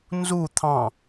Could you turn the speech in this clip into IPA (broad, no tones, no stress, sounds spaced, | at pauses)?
n z u t̪ʰ ɑ̃